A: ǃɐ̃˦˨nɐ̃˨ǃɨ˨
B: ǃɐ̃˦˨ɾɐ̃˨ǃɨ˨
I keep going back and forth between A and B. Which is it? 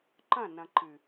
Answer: A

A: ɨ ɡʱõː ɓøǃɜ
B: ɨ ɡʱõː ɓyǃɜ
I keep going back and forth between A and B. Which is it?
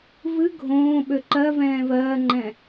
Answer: A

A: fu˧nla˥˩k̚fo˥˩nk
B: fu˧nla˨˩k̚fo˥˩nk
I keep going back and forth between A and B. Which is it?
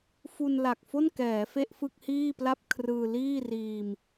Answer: B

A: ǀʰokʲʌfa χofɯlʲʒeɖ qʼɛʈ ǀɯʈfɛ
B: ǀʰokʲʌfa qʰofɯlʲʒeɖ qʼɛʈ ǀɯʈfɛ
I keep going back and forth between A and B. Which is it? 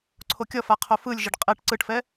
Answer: B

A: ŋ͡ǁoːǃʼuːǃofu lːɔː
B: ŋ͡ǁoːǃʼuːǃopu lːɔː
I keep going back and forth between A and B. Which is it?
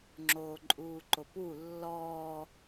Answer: B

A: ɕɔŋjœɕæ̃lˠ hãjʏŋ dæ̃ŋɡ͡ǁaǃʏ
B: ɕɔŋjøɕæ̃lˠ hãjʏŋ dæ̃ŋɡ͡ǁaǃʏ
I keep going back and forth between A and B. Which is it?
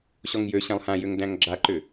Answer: B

